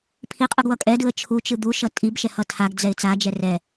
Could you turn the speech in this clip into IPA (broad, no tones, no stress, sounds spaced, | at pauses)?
pʰ i qʼ ɯ ɡ w ʌ kʼ ɛ d ɯ ə̯ t͡ʃʰ u t͡ʃ ɯ d̪ u ʃ ʌ tʼ i b ʃ ɛ h ʌ tʰ a ɡ d͡z ɛ ɪ̯ t͡s a d͡ʒ ɛ r ɛ